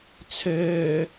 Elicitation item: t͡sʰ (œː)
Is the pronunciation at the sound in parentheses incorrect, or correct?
incorrect